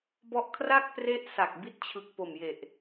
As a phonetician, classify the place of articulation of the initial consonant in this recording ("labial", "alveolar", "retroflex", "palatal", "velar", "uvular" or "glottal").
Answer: labial